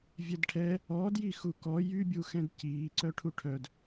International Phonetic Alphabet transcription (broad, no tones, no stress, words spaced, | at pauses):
vʲɛdʈʰɛ | ɔ djixukɔ jybʲuxɛ̃d ciːǀœʈʰu ʈʰœd